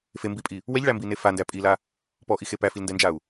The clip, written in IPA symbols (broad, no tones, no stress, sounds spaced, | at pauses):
f e m b i pʼ i | w ɛ ʎ ɭ æ m b i n e f a n d æ pʼ i l a | p ɔ ʔ i x e p æ f i l n d ɛ n d͡ʒ a u̯